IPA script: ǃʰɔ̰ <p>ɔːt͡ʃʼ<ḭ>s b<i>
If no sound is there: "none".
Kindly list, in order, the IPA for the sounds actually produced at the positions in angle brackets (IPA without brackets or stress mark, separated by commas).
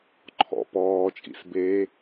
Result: p, ḭ, e